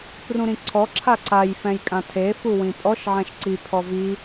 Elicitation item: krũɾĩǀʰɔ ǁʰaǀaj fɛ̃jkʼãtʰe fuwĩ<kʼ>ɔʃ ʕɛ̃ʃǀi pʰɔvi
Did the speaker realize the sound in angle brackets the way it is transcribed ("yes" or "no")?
no